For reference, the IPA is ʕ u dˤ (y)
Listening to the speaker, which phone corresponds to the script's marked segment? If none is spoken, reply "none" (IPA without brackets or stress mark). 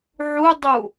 u